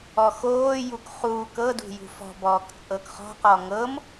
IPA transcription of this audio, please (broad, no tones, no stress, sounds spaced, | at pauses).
ɔ x oː j u k χ uː k ɤ d ṳ j ṳ f ɔ̤ b ɔː k t͡sʼ ɤ k χ ɔ̤ q ɔ ŋ ɤ m